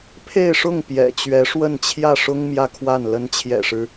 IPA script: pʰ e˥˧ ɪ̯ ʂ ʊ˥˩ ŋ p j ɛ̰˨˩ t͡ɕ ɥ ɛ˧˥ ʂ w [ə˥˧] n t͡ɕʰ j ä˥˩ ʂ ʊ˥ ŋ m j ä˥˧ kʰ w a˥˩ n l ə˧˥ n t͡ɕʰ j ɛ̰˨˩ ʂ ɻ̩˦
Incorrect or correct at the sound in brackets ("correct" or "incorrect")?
correct